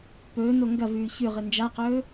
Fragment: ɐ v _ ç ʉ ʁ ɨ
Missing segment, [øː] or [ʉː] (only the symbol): ʉː